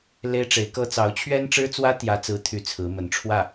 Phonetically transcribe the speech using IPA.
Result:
le˥ɪ̯ʈ͡ʂe˧˥ɪ̯kɤ˥ t͡sɑ˧˥ʊ̯t͡ɕʰɥɛ˥nʈ͡ʂɻ̩˥t͡swä˥ t̪jä˥t͡sɹ̩˥ t̪ʰy˥˩t͡sʰɹ̩˧˥mə˧˥n ʈ͡ʂʰwä˥˩

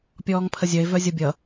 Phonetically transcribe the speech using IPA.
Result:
pʲɔːŋpʰəzʲœe̯ vœzʲʌbʲʌ

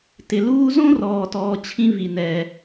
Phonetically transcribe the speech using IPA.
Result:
tɪ˨luː˦ zõ˥rɔː˨tɔː˨ t͡ɕʰĩ˦vi˨nɛː˨

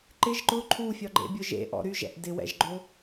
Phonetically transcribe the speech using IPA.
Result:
ǃɪʒ ǃʊ ǃʰufʲɒɡ͡ǃḛbʲʊ ʒḛʔɔ̰ ɾyʒɛ̰ʔ dɪwɛ̰ʒɡ͡ǃo

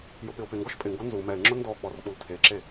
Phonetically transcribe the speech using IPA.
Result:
jʊpɪʊ̯pɪŋɡɔʃ pʼɪŋɡo nzu mɛɪ̯ŋ͡ǁʊ ndɔ k͡pɔrk͡pultʰeǁe

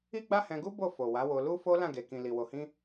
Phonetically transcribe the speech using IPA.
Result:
i˦ɡ͡ba˦hɛ̃˧ɡu˦ bo˦˨ fo˨ wa˨˦wo˧ lu˦fo˦ lã˦˨ɡe˨kĩ˨ li˨wo˨hĩ˧

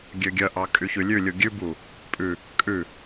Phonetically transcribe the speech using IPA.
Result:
ɡʲøɡʲœʔɑ kʼyçʉlʲʉlʲu ɡʲʉbu | pʼʉ | kʼʉ

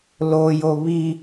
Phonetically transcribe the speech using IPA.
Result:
lojo βi

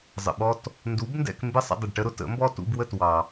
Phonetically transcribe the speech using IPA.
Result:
zˤə̰˩ɓɔ˧t | ndu˩˥bndɛ̰˧k mbɪ˥˩sˤə̰˧ dˤə˩ɖʈə˧ɾʊ˧ tə̰˩˥mbɔ˥ tṵ˧bwə˥˩t wɑ˩

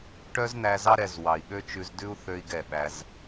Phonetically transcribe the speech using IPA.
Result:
ʈœ˦zn̪æ˧zɑ˦ ɾɛ˧z wɑ˨i̯ɠø˦t͡ʃʉ˧zdʉ˦u̯ θø˦i̯ɡɛ˦˨ ɓæ˦z

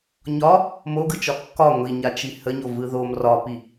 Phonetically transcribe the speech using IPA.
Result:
ɲɒ | moɡɯt͡ʃɒ kːɒ ŋʷiɲat͡ʃi həɲovɯ ðom rɒpi

